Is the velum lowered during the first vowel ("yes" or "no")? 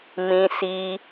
yes